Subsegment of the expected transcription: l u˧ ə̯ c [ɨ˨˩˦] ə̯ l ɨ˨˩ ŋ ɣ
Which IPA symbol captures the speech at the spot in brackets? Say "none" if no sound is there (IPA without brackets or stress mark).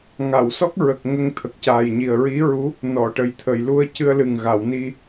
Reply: ɨ˧